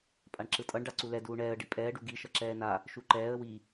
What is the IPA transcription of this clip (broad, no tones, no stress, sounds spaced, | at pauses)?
pʼ a ɳ ǁ ɯ tʼ ʌ ɳ ɖ a ǀ u l ɛ d uː ɳ ɛː ə̯ ɖ i pʼ ɛː ɖ u ɡ i ʃ ʌ ǁ ɛː n a | ʃ u ǃ ɛː ə̯ w i